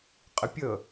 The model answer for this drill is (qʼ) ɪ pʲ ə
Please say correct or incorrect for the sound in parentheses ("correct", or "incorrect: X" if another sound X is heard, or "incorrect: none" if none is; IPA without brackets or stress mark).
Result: correct